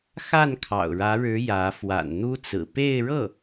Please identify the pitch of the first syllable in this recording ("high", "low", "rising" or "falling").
falling